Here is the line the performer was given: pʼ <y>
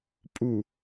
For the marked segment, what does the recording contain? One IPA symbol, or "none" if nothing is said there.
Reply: u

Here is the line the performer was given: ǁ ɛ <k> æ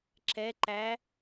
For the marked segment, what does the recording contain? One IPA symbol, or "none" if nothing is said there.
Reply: ǃ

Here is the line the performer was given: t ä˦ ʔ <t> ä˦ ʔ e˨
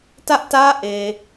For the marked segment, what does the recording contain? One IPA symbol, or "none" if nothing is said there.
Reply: t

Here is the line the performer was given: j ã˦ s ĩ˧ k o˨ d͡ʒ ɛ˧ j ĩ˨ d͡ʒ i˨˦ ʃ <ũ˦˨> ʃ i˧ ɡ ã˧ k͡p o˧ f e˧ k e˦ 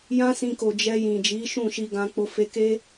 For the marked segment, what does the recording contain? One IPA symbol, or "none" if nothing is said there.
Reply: ũ˦˨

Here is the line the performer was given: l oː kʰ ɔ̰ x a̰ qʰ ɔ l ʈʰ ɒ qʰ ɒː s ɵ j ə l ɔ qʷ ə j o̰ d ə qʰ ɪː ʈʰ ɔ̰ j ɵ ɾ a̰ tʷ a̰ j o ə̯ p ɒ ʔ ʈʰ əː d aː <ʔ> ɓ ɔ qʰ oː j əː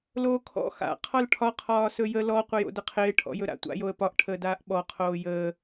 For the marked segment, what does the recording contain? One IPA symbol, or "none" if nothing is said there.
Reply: ʔ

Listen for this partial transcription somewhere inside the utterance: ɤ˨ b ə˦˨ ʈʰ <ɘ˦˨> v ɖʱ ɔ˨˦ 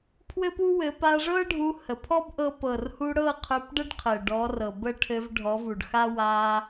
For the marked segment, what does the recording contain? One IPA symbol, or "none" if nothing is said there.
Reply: ɘ˧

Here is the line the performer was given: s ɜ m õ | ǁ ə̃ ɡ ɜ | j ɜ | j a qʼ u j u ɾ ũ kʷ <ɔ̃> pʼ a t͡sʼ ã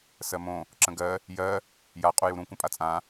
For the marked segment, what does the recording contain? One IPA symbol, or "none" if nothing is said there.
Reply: ə̃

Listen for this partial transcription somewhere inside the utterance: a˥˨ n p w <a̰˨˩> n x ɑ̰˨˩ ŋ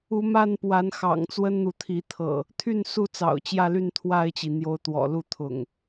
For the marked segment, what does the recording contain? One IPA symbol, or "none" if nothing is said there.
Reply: a˨˦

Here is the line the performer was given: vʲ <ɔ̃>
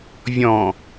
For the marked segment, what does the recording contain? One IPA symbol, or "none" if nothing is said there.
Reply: ɔ̃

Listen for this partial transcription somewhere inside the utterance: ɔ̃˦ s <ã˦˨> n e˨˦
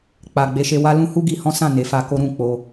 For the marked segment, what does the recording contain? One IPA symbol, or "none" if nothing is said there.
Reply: ã˦˨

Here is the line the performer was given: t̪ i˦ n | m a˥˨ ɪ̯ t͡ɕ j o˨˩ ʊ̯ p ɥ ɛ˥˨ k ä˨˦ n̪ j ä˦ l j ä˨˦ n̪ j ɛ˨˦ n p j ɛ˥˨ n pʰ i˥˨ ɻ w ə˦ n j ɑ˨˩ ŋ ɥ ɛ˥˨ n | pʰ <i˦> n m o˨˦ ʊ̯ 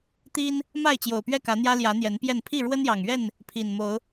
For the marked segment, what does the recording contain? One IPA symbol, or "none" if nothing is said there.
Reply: i˨˩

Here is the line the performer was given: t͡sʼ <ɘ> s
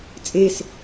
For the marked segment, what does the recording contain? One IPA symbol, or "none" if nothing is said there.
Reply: e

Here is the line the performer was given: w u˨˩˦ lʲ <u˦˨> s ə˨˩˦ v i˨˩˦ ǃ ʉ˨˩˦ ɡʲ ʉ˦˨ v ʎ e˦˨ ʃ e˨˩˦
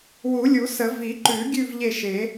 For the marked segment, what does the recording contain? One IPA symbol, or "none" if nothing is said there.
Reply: u˨˩˦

